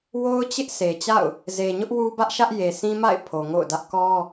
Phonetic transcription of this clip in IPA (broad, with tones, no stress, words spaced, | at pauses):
wo˦ʊ̯t͡ɕɪ˦ʔ se˨t͡ɕa̰˦˨ʊ̯ | ze˨ɲʊ˦ʔ wu˦bä˦ʔ ʃä˦ʔje˨sʰĩ˦ma̰˦˨ɪ̯ pʰo˨ŋo̰˦˨ʊ̯dä˦ʔ kɔ˦